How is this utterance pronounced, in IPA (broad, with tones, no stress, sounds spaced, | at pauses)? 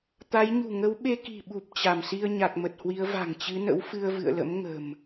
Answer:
t̪ a˨˦ j ɲ ṳ˨˩ ŋ ə˨˦ w ɓ e˧ k i̤˨˩ ɓ u˨˩ p̚ t͡ɕ a˧˩ m s i˧ ə̯ ɲ a˨˩ k̚ m ə˨˩ t̚ h w i˨˦ ə̯ v a̤˨˩ ŋ t͡ɕ ɨ˨˦ n ə̰˧˥ w f ɨ˧ ə̯ v ɨ̰˧˨ ə̯ l ə̰˧˥ m ŋ ə̤˨˩ m